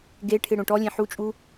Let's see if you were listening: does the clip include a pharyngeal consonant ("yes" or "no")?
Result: yes